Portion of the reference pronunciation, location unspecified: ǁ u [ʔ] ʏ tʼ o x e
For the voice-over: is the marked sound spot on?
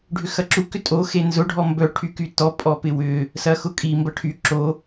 no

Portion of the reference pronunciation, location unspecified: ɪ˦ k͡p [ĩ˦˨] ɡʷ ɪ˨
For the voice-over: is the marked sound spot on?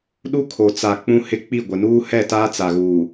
no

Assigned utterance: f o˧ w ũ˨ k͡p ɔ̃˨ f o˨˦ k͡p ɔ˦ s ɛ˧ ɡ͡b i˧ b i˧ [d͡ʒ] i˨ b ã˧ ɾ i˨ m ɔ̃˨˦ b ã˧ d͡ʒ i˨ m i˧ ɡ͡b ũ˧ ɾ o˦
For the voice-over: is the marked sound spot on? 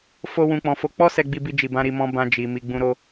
yes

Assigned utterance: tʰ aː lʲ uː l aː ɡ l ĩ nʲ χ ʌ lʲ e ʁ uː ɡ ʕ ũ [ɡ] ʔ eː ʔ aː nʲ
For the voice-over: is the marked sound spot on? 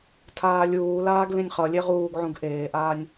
yes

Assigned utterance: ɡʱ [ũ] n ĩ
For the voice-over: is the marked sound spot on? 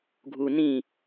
no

